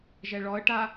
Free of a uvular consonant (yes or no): yes